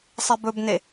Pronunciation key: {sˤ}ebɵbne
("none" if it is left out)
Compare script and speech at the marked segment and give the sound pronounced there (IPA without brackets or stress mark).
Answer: sˤ